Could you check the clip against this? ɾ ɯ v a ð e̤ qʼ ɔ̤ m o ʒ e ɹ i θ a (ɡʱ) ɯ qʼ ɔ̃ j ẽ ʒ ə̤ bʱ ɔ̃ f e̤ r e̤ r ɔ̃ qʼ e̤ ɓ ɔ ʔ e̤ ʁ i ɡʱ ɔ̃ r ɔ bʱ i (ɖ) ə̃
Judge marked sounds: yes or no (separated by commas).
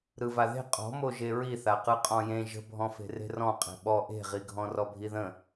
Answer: no, no